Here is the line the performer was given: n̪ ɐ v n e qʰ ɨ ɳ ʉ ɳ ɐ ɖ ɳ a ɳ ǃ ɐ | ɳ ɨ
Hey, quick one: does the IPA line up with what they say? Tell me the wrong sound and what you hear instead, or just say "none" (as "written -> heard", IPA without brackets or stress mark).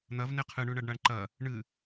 none